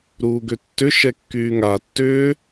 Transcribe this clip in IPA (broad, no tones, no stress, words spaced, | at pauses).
ɾuːɡøtːʏ ʃɛkːyːŋa tːʏː